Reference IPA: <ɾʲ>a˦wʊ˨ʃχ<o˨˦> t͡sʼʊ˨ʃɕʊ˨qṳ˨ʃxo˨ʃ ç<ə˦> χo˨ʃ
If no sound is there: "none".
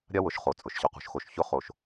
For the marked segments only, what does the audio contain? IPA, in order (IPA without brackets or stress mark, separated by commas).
ɾʲ, o˨, ʊ˦